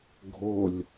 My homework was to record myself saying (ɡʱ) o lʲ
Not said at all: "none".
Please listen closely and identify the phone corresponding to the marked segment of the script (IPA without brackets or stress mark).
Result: ɡʱ